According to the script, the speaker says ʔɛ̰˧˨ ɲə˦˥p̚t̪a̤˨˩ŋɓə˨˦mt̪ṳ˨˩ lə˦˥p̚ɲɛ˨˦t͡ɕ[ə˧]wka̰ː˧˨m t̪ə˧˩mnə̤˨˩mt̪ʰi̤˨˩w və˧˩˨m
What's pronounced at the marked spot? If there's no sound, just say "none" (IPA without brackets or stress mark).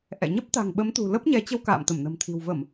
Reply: ə˧